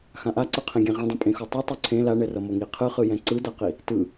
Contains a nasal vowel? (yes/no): yes